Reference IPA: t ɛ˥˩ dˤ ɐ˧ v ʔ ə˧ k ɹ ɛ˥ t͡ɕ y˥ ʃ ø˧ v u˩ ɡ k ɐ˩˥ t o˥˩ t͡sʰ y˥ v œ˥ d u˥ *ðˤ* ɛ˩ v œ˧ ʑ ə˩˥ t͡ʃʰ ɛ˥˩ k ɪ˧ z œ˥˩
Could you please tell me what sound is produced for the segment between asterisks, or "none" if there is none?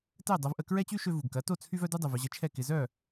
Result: dˤ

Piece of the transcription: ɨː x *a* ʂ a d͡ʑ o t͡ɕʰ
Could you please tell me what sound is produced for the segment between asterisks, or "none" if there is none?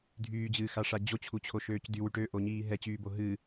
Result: a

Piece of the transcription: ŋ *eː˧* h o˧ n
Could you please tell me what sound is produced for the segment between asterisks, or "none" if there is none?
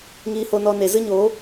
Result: iː˧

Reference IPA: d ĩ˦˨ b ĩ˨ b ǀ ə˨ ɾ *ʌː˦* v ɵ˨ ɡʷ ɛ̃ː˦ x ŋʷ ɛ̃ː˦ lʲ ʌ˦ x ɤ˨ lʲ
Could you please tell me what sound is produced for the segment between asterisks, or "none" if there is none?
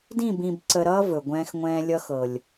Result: ʌː˦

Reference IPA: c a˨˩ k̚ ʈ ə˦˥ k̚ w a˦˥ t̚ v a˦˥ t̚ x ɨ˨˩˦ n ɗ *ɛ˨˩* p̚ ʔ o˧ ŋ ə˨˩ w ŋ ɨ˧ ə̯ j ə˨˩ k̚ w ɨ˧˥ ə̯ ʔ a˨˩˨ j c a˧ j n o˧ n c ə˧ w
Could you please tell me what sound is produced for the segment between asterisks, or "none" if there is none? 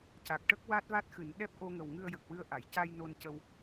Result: ɛ˦˥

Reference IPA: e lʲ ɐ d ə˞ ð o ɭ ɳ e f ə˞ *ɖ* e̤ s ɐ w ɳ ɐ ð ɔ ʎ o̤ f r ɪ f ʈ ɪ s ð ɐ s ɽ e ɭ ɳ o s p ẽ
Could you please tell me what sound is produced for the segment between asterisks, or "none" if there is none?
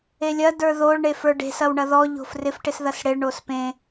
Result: ɖ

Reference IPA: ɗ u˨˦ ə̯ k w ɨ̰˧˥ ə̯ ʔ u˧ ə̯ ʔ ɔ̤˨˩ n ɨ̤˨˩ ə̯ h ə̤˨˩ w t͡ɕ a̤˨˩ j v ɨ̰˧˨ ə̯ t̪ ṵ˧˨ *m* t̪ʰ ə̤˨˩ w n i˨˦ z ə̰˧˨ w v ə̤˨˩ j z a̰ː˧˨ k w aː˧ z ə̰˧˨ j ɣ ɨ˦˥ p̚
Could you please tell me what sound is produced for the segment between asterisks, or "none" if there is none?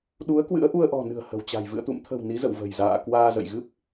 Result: m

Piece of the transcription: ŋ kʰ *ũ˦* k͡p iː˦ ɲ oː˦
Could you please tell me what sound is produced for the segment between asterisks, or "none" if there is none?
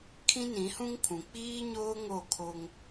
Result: ũ˨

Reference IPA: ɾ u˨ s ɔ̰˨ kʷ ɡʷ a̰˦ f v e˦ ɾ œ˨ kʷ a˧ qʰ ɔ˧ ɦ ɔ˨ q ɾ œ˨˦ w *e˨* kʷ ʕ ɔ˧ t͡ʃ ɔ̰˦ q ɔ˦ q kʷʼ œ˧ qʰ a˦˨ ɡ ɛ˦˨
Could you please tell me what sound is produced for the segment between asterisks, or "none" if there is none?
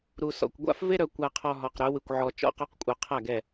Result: ɨ˨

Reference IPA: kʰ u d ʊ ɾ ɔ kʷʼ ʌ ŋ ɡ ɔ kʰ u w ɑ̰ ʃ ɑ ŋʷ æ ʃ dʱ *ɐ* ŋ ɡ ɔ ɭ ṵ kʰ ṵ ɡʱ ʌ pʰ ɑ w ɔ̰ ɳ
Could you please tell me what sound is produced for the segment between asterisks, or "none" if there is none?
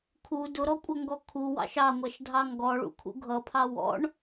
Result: ɑ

